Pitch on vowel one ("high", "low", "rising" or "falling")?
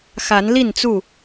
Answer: rising